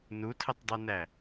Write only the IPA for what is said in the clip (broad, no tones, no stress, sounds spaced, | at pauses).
n u tʰ ə tˤ dˤ u n æ